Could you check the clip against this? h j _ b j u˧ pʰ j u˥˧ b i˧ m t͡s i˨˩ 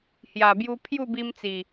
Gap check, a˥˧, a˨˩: a˨˩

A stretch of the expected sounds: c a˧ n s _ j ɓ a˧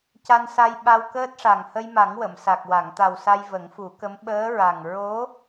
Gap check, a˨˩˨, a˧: a˧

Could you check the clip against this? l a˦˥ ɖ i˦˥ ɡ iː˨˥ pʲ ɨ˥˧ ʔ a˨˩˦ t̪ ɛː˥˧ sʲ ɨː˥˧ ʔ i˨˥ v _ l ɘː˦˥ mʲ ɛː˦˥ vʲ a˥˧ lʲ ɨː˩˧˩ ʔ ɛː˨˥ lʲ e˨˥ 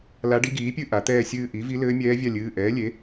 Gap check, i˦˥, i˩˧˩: i˦˥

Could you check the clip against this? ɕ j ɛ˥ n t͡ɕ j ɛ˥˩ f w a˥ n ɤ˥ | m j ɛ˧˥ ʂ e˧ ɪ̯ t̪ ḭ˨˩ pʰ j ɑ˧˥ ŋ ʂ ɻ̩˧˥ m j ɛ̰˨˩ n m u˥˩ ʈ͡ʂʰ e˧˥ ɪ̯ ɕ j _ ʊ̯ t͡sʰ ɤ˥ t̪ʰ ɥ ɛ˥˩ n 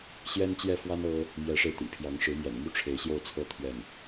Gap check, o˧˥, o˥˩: o˥˩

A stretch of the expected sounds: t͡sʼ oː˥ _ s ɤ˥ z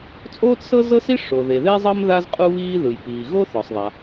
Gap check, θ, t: t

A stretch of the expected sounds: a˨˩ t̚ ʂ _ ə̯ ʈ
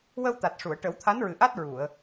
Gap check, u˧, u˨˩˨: u˨˩˨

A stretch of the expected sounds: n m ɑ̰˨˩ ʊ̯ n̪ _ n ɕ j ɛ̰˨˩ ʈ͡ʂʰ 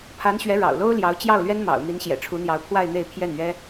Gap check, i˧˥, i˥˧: i˧˥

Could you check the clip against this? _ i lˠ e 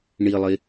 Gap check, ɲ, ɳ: ɳ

